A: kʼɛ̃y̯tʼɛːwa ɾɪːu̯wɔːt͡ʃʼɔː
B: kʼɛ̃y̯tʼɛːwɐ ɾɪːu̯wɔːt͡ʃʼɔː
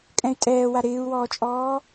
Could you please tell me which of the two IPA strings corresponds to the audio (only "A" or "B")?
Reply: A